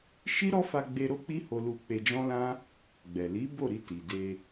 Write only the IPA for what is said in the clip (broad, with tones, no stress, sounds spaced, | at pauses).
ʃ i˦ ɾ ɔ˦ f a˧ ɡ͡b e˧ ɾ o˦ k͡p i˦ h o˧ l u˧ k͡p e˧ d͡ʒ ɔ̃˦ l ã˦ | ɡ͡b ɛ˨ l i˨˦ b o˦˨ ɾ i˧ t i˨ d e˧